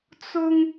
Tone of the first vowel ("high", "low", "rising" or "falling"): high